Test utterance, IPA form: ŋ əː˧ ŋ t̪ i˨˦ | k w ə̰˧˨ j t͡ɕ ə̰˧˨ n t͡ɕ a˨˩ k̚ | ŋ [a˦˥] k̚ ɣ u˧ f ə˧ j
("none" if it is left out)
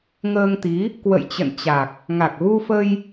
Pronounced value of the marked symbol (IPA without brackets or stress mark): a˨˩